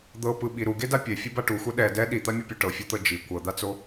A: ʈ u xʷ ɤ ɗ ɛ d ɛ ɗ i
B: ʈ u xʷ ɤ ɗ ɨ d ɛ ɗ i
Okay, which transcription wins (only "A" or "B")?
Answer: A